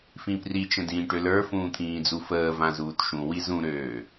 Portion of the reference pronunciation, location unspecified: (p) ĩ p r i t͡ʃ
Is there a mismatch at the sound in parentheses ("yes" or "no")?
yes